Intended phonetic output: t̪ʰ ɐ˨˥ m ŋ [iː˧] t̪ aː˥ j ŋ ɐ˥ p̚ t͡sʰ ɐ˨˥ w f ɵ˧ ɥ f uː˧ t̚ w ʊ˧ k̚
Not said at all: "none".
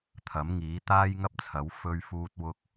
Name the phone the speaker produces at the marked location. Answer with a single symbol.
iː˨˥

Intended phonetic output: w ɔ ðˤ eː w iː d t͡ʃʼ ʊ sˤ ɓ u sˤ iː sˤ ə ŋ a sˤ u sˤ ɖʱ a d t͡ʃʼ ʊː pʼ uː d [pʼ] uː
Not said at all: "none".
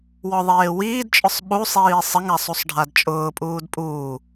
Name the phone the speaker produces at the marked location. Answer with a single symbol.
pʼ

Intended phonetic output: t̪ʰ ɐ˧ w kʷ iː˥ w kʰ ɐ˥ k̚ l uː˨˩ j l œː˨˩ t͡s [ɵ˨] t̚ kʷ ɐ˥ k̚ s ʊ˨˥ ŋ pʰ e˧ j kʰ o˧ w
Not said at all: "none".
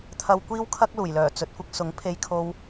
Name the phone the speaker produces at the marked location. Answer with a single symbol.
ɵ˨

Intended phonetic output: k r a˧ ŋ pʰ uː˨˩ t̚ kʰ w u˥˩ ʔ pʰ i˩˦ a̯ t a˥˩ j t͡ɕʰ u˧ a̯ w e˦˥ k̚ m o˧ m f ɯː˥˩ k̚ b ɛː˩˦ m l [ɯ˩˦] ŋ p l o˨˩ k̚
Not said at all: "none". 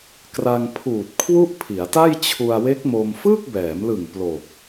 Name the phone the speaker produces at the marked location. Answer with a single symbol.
ɯ˨˩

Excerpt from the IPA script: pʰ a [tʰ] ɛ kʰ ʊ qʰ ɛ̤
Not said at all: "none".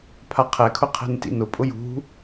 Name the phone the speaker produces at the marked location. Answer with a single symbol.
qʰ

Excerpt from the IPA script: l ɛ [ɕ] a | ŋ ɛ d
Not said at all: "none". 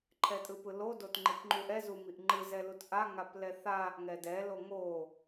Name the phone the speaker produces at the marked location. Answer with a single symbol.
θ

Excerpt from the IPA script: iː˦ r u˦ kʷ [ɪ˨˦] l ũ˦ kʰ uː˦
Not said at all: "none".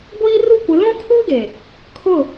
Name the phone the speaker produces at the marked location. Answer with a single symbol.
ɪ˨˦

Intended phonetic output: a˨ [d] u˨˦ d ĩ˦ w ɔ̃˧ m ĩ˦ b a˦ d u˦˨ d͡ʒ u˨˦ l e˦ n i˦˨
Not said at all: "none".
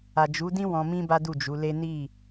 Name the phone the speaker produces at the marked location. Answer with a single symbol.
d͡ʒ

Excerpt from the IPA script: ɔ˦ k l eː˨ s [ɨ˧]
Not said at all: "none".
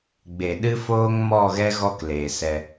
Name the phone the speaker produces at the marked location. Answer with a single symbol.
ɛ˧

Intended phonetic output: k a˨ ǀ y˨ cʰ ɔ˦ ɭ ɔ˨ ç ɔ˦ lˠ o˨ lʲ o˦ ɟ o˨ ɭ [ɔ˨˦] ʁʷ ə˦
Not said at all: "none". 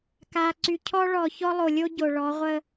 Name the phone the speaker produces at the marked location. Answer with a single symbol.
ɔ˨˦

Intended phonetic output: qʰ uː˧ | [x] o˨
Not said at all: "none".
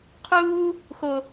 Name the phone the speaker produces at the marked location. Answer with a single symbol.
x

